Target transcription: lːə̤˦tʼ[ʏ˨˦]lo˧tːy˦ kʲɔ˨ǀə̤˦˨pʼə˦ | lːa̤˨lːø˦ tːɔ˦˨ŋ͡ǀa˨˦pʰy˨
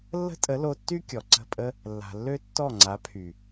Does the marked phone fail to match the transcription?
yes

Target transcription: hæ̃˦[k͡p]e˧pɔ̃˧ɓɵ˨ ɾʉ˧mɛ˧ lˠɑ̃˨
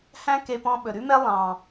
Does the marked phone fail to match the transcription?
yes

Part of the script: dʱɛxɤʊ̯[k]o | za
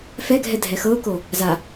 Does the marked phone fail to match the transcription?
no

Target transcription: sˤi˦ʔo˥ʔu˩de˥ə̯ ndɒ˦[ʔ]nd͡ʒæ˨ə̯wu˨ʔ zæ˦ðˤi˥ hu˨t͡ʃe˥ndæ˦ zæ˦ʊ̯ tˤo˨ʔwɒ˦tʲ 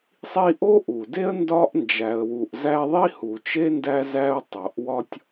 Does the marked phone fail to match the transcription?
no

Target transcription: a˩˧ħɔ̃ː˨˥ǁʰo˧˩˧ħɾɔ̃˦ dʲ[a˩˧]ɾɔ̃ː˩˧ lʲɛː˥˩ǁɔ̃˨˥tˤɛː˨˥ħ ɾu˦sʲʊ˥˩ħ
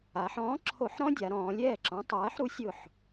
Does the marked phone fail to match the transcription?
no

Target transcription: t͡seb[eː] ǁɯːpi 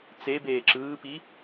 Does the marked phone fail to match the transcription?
no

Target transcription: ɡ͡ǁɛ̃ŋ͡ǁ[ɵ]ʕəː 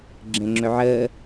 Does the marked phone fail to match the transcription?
no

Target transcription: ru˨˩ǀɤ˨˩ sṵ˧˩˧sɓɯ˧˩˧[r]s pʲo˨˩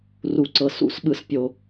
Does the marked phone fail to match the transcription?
yes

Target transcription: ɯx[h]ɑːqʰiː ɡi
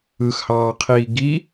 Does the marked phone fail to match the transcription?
no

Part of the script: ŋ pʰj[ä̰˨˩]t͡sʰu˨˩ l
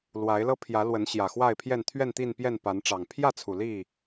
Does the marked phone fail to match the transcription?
yes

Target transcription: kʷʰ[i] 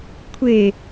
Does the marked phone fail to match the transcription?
yes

